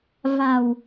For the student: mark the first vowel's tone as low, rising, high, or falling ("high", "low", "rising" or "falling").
low